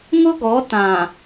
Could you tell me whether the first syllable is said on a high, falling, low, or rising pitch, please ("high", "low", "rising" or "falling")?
high